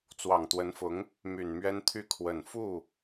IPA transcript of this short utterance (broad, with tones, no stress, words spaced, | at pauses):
t͡swɑ˨˩ŋt̪wə˧˥nfʊ˧˥ŋ | my˨˩nmɥɛ˥nt̪ʰy˥˩ kʰwə˨˩nfu˥˩